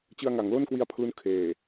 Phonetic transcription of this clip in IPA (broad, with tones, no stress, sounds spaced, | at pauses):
t͡ɕ ɯ˧ a̯ ŋ a˩˦ ŋ l o˥˩ n k w i˧ a̯ pʰ l u˦˥ n kʰ eː˨˩